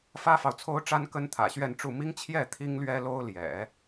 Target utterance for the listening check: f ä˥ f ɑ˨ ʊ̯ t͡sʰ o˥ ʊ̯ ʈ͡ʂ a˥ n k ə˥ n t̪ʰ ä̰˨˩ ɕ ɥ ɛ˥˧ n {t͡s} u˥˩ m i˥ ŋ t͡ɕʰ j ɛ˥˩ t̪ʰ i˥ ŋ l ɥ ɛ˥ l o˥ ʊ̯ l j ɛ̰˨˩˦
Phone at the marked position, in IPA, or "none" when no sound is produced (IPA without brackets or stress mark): ʈ͡ʂ